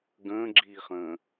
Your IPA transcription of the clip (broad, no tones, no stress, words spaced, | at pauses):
ɡə̃ːɡ͡ǁiːχə̃ː